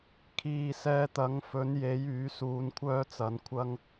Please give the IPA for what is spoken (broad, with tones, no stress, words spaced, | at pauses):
kʰiː˨sɛː˧t̪ɐ˨˥ŋ fɵ˨˥nje˨˥j yː˨˥suː˧nkʷʰœː˥t͡sɐ˨˥n kʷʰɐ˥ŋ